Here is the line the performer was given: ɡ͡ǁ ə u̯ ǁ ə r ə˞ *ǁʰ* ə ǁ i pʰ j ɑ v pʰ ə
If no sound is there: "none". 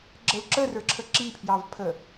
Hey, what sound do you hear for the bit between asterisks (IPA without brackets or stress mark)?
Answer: ǁʰ